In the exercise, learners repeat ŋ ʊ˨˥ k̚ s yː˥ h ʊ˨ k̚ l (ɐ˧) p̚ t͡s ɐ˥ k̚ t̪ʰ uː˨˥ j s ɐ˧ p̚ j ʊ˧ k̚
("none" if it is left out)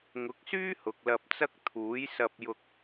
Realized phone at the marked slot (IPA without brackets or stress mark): ɐ˧